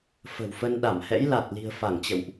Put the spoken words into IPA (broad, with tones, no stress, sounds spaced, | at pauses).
f ə̤˨˩ w f ə˧ n ɗ a˧˩ m h ɛ̰˧˥ j l a˨˩ t̚ l i̤˨˩ ə̯ f a˧˩ ŋ t͡ɕ ə̰˧˨ w ʔ